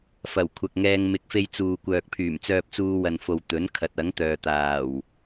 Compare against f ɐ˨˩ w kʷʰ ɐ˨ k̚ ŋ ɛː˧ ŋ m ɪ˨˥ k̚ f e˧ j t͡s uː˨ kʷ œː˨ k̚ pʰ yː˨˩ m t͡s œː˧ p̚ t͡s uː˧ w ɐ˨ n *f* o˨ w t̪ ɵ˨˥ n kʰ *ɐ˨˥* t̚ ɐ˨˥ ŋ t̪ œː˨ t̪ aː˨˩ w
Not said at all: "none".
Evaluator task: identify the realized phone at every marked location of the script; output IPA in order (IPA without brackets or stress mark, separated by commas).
f, ɐ˨˥